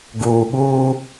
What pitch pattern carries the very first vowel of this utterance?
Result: low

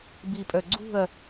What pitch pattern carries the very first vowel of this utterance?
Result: low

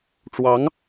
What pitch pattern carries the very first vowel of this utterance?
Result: rising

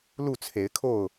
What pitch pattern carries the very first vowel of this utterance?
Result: falling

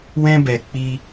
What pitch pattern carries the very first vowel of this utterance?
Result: high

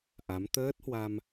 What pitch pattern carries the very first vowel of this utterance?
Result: rising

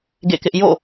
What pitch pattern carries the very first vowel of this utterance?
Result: falling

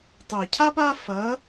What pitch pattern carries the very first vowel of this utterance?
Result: low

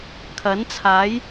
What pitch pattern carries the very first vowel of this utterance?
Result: rising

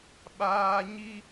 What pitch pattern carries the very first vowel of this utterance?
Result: high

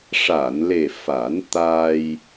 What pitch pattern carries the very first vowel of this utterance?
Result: low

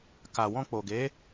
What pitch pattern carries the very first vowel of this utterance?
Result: low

